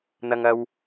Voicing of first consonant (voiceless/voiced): voiced